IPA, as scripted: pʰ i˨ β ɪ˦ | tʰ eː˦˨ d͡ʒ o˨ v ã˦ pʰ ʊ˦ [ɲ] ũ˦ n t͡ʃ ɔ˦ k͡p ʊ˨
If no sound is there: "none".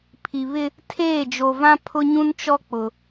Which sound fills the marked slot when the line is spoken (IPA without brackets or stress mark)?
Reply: ɲ